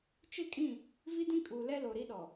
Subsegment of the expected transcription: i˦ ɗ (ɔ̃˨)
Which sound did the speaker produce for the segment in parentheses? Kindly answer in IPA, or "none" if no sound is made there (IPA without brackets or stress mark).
ɔ˨